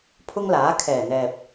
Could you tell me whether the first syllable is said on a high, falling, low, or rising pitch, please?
high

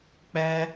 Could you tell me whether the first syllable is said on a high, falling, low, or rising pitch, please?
high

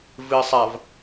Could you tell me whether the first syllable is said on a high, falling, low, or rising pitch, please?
low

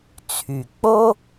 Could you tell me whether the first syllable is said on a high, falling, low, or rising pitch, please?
low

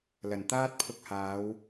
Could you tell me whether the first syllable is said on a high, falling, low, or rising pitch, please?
low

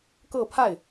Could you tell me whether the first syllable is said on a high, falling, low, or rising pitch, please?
falling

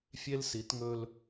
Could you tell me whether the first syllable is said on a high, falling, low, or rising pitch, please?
high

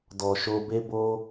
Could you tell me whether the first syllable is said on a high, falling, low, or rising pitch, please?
low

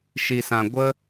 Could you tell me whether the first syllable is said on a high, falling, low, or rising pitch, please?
low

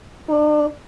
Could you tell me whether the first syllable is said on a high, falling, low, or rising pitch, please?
high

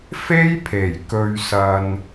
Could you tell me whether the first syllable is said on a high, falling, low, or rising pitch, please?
high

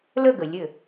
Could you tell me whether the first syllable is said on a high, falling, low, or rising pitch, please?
falling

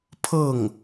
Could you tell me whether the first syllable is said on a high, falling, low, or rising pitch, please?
falling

